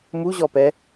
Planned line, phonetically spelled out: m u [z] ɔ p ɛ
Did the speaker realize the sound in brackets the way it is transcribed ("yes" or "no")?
no